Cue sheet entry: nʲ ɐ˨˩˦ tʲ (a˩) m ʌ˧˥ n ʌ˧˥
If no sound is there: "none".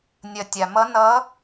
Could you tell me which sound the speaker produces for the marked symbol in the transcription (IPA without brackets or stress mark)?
a˩